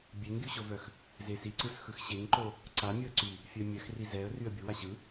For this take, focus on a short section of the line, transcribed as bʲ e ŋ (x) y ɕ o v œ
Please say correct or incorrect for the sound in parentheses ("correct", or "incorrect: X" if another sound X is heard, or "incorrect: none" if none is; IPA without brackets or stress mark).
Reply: incorrect: ɡ